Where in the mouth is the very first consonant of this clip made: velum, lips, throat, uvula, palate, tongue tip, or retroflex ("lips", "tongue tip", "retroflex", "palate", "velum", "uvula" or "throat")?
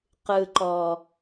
uvula